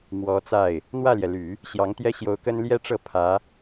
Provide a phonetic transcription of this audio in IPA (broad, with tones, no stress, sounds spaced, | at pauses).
m w ɔ˧˥ t͡s a˥˩ ɪ̯ | n̪ w ä˥˩ l j ɛ˩ l y˨˩˦ | ɕ j ɑ˧˥ ŋ t̪ j ɛ˥ ɕ j o˧˥ ʊ̯ k ə˥ n l j ɛ˥ ʈ͡ʂ ɤ˥˩ pʰ ä˧˥